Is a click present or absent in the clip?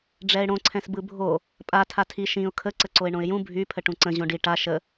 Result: present